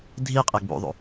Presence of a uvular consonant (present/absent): present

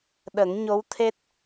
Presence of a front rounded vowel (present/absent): absent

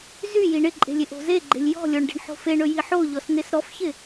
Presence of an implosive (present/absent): absent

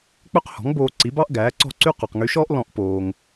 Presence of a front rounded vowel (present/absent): present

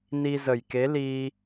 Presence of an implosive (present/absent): absent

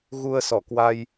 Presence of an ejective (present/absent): absent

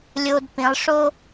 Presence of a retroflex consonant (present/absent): present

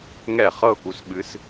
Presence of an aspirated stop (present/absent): absent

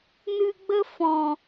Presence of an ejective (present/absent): absent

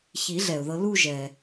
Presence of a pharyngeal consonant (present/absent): absent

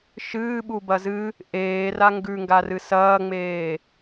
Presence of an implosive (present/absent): present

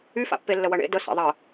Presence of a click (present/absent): absent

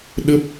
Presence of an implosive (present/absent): present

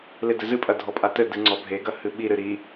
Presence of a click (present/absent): present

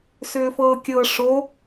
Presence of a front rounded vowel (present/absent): present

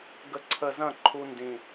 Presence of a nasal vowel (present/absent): present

